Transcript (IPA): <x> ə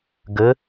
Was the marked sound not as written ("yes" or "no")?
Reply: yes